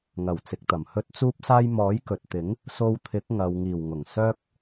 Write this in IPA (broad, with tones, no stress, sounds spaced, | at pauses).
ŋ ɐ˨˩ w t͡s ɪ˨ k̚ t̪ ɐ˨˩ m h ɵ˥ t̚ t͡s uː˥ p̚ s aː˥ j m ɔː˨˥ j k ɵ˨ t̚ t̪ ɪ˨˥ ŋ | s o˧ w t̪ʰ ɪ˨˥ k̚ ŋ ɐ˨ w ŋ iː˨˩ w ŋ ʊ˨˩ ŋ s œː˥ k̚